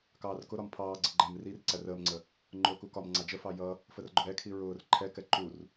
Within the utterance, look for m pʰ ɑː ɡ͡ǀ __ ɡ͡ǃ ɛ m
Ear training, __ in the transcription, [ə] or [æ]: ə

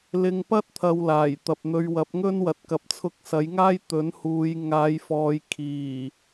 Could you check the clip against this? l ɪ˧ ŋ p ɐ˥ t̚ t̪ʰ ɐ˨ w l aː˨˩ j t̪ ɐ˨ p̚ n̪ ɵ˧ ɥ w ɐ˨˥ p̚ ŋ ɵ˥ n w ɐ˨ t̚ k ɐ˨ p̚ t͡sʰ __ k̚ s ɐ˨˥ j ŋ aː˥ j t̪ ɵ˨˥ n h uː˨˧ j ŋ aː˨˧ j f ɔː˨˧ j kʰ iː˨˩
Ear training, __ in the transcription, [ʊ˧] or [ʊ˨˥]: ʊ˧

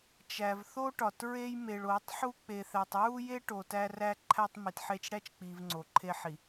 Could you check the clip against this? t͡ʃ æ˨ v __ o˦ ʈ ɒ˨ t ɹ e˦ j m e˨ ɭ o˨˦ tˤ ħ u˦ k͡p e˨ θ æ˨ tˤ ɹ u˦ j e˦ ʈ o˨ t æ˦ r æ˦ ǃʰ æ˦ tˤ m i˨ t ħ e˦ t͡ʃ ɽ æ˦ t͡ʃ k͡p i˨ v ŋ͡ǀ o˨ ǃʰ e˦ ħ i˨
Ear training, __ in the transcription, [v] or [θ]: θ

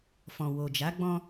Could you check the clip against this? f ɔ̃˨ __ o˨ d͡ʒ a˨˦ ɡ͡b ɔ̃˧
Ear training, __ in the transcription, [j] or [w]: w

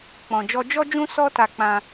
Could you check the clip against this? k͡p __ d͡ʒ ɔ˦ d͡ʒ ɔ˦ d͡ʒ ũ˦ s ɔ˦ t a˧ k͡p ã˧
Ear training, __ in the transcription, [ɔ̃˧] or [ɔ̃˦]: ɔ̃˧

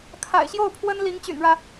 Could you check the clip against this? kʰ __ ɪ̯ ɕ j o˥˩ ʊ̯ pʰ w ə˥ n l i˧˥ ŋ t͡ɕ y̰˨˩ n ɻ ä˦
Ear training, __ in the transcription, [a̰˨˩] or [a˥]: a̰˨˩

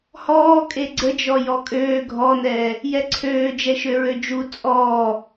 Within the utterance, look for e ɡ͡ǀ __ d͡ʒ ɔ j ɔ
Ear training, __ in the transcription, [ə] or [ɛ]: ə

